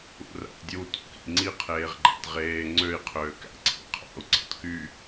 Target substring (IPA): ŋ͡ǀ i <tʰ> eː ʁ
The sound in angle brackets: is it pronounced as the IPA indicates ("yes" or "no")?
no